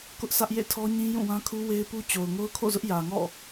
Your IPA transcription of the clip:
kʊ˦ʔsä˦ʔ jḛ˦˨tʰɔ˦ɲĩ˦ jũ˦˨wã˦kʰu˦ we˦ɪ̯pu˦ t͡ɕo˨ʊ̯ŋo˦ʊ̯kʰo̰˦˨zʊ˦ʔ jä˨ŋɔ̰˦˨

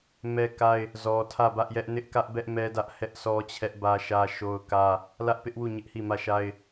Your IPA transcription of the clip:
mɛ˦ka˦ɪ̯ | zɔ˨tʰä˦˨ bä˦ʔjɛ˦ʔ nɪ˦ʔkä˦ʔbɛ˦ʔ mɛ˦dä˦ʔ hɛ˦ʔsʰɔ˦t͡ɕʰɛ˦ʔ bä˦ʃä˦ʃo˦ʊ̯kä˦ | lä˦ʔpɪ˦ʔwu˦˨ ɲɪ˦ʔhi˦˨mä˦˨ʃa˦ɪ̯

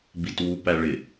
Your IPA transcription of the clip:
bitwu pæɭɪ

